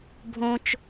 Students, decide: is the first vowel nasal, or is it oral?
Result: nasal